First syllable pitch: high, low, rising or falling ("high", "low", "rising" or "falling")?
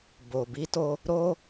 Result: low